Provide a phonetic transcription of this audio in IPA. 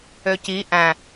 ø c i ʔ æ̃

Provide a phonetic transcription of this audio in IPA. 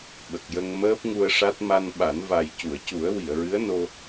ɓ ə˨˩ k̚ j ə˧ ŋ m əː˦˥ p̚ ŋ u˧ ə̯ ʂ a˦˥ t̚ m a˧ n ɓ a˨˩˦ n v a˨˩ j c u˨˩˨ ə̯ c u˨˩˦ ə̯ w i˨˩˨ ə̯ ɹ ɨ˧˥ ə̯ n o˧

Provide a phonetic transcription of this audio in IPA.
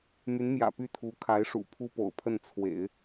m y˧˥ n m j ä̰˨˩ p y˥˩ t̪ʰ u˧˥ kʰ a˧˥ ɪ̯ ʂ ṵ˨˩ pʰ u˥ p o̰˨˩ ʊ̯ pʰ ə˥˩ n t͡sʰ w ḛ˨˩˦ ɪ̯

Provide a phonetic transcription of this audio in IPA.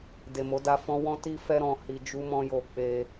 d e˨ m o˨˦ d a˧ f ɔ̃˦ w ɔ̃˦ t i˦ f ɛ˦ ɾ ɔ̃˧ h i˧ d͡ʒ u˦ m ɔ̃˦ j o˧ k͡p e˧

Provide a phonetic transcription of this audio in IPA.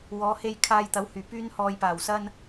w ɔː˨˧ h e˧ j kʰ aː˧ j t̪ ɐ˨˥ w h yː˨˩ p yː˧ n h ɔː˨ j p aː˨˩ w s ɐ˧ n

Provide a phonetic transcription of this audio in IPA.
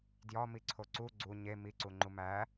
d j ɒ m i ǀʰ o ǀ u ɡ͡ǀ u ɲ e m i ǀ u ŋ͡ǃ u m æ

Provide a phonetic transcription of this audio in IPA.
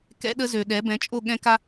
k ɛ̰˦ ɗ ə˦ z ø˨ ɗ ɛ˨˦ b ɛ̃˨˦ t͡ʃʼ o˦˨ ɠ ɛ̃˦ k a˦

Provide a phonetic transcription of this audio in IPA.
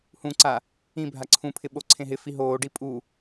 h ũ ǀ a | ĩ bʱ a ǀʰ ũ pʰ ɪ ɓ o ǀʰ ẽ ɦ ɪ f i ɦ oː ɖ i pʼ u

